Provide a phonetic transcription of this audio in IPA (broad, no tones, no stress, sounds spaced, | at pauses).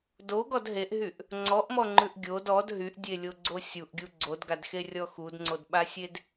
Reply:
d o ɡ ɔ d ɦ e ʔ ɦ y ʔ | ŋ͡ǀ ɔ ʔ m ɔ ŋ͡ǃ ʉ ʔ ɡʲ o d ɔ d ɦ y ʔ dʲ e lʲ o ɡ͡ǀ o sʲ u ʔ ɡʲ u ɡ͡ǀ o d ɡ a d x e rʲ ɔ x u d ŋ͡ǀ o d ɓ a sʲ e d